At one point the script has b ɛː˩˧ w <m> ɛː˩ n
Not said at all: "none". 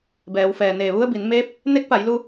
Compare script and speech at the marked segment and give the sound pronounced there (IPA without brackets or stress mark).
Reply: f